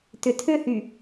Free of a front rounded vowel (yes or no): no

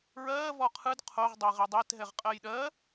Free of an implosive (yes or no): no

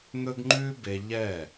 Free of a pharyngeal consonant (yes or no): yes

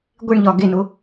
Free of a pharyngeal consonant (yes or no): yes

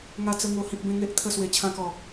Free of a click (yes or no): yes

